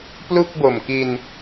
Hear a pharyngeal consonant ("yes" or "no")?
no